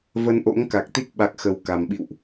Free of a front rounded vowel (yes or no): yes